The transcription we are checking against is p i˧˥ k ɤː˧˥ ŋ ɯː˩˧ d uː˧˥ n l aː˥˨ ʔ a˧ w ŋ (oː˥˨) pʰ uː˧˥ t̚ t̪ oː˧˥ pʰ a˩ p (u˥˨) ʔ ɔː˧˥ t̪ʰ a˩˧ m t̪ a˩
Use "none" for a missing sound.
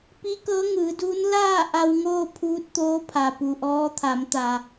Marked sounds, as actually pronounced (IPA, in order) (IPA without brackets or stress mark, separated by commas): oː˥˨, u˩